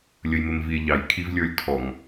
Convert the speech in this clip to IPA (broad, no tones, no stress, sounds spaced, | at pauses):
lʲ ə j m ɪ m v i e̯ ʎ ɑ j kʰ i v lʲ ə˞ lʲ tʰ ɔ ŋ